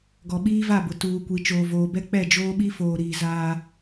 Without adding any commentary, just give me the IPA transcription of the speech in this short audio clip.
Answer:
ɡɔ˨ɓiː˦va˦˨bʊ˨ tuː˨kʷi˨ t͡ʃoː˨voː˨bɛ˦ k͡pɛ˦˨d͡ʒoː˦ɓi˦ foː˨ɾiː˨ zaː˦

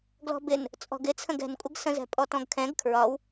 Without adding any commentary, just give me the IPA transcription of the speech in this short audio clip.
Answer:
ɡlɔ̤bɪn | t͡sʼɔ̤ɡɪt͡sʰə̃ɡ ɛ̤nkʷʼəɡsə̃zɛ̤ pʼɔtɔ̃ɡkʰɛ̃ɡ kʰɹɒw

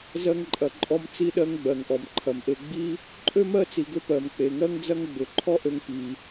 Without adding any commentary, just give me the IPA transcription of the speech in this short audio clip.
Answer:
zɜ˧ŋǃʼɐ˩ ǃʼɔ˧m t͡si˧ɗɜ˧ŋ ɡ͡bɜ˩ŋʔɔ˩mǃʰɐ˩mʔe˧ ɡ͡bi˥ | ǃʼø˥mɜ˥t͡si˩ɡʏ˧ pɜ˩mk͡pe˩ŋɜ˥ŋd͡zɐ˥ŋ ɡ͡bʏ˩ǃʰɔ˥ʔø˧ŋ pi˩

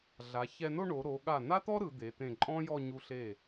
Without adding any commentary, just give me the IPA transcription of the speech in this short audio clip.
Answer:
ɮa˩˧çɛ˧ no˥˧ɳo˩˧ɾo˩˧ ɠa˧˩na˥t̪ɔ˥ ɾɯ˩˧d̪e˩˧t̪ẽ˧˩ǃʼɔ̃˥ jɔ˥˧ɲu˧ ɬe˧˩

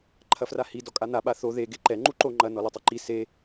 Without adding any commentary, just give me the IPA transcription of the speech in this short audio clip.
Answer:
ǃʰɐfrahi dɔkʼan̪a ɓaθo ðe ɡeǃɛ ŋ͡ǃuǃo ŋ͡ǃɐ nɔlɨtˤiǃi se

